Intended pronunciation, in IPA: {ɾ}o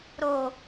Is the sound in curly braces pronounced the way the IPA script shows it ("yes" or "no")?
yes